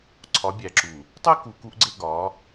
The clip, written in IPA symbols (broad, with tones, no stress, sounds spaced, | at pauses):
ǀʰ ɒ˨˦ bʲ æ˨ ǁ u˨ | tˤ e˦ k u˨ k u˦ ʔ ɡ͡ǀ e˦ ɡ ɒ˨˦